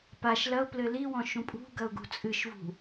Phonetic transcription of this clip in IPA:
paʃ lɐʊ̯plɘ liwɔ̃ ʃũpʼṳɡɐʊ̯ɡṳ t͡sʼɨʃvṳ

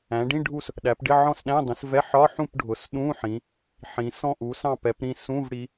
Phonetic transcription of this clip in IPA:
æ̃˩˧ɖĩ˧˥˧ ɖʱu˥˨s | ɗæ˩˧pɖɪ˧˥˧ʕɔ̃˥˨sɗæ̃˧˥˧ dˤĩ˩˧svɛ˧˥˧ ħɒ˧˥˧ħũ˥˨p ɖʱʊ˩˧s ɗũ˧˥˧ħĩ˩˧ | ħĩ˩˧sɔ̃˥˨ʔu˩˧ sɑ̃˥˨pɛ˩˧pɾĩ˥˨ sũ˧˥˧vɽi˩˧

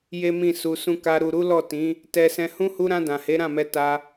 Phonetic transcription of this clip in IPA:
je˦mĩ˦˨ su˧sũ˦ ka˧ ɾu˨ɾu˨˦ lɔ˦˨tĩ˨˦ | tɛ˧sɛ̃˧hũ˦ hu˧ɾã˧ dã˨he˨˦ɾã˦˨mɛ˧ ta˦

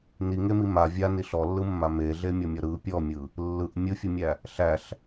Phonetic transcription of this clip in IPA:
niŋemi ma vʲani ɬɔlːɯmːa meɮemʲɔmʲɔ ɾɯ pʲɔmʲɯ | lːɯʔ mʲɯfʲɯmʲæ | ɬæɬ

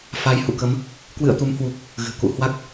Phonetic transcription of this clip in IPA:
fa˨˦j hṵ˧˨kə˨˦m | kwɨ̰˧˨ə̯ t̪u˨˦mhwu˨˩k̚ | ɣɨ̤˨˩kṵ˧˨hwa˦˥k̚

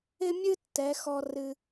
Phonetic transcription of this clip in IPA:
ɪ˦mʲɨ˦tːɛ˨˦ xɔ˦ rɨ˧

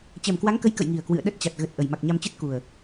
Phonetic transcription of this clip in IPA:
t͡ɕɛ˨˩mkwa˨˦ŋkə˨˦j kə̰˧˨jŋi˨˩ə̯ kwɨ̰˧˨ə̯ɗə˦˥t̚t͡ɕa˨˩t̚ ɣə˨˩t̚ ʔə˨˩jma˨˩k̚ɲa˧mt͡ɕɨ˦˥t̚ ku˨˩ə̯

